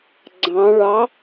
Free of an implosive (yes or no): yes